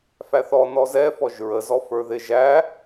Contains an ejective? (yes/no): no